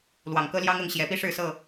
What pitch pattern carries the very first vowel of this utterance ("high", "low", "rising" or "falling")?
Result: low